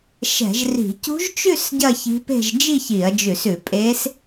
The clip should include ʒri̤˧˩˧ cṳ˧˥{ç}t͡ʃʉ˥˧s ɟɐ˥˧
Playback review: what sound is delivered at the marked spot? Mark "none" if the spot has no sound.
ʒ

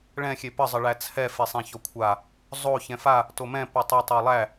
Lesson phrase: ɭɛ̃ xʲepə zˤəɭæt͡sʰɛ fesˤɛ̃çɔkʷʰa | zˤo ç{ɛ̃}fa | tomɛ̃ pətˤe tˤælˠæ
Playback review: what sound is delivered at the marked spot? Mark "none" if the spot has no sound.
ɛ̃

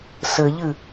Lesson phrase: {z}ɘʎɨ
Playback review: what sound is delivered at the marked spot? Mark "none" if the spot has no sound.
s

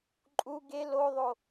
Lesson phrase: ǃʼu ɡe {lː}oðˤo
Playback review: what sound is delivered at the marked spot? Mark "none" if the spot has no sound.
l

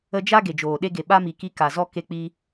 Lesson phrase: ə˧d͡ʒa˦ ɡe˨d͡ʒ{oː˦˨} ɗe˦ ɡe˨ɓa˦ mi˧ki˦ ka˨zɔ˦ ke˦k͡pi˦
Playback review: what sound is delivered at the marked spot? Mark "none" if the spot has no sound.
oː˨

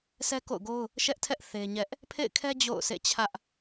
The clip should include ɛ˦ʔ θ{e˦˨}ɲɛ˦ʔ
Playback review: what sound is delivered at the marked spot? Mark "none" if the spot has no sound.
e˦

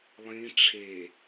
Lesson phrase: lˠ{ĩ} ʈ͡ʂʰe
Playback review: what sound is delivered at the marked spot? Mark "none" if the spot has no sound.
ĩ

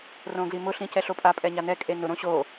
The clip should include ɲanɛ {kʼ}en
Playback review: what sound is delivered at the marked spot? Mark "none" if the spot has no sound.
kʼ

